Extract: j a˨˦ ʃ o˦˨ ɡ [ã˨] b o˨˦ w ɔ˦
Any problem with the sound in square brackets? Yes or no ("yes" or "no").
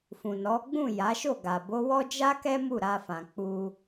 yes